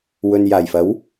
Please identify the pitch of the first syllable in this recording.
low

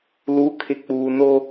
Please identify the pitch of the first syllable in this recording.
rising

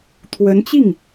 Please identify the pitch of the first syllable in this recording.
rising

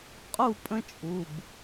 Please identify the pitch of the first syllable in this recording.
falling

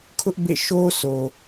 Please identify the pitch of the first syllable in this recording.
high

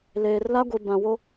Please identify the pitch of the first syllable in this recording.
low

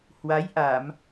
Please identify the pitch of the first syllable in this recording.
rising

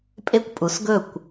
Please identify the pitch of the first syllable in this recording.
falling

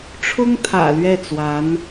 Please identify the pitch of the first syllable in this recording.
high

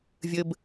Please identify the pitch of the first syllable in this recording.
high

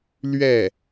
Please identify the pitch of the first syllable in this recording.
falling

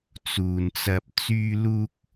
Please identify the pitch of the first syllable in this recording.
low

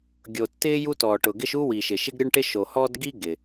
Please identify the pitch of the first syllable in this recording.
low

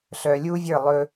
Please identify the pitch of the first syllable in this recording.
low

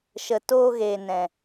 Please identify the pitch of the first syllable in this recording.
low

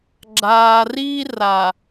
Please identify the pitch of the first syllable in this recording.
low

